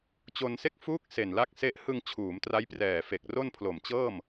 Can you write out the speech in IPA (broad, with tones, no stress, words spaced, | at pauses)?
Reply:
t͡ɕo˧nse˥˩k̚fuː˥˩k̚ se˨˩nla˦˥k̚se˦˥ʔ hɯ˧ŋ t͡ɕʰuː˩˦mtra˦˥jprɛː˨˩fe˨˩k̚ ro˥˩npʰlo˨˩mt͡ɕɤː˥˩m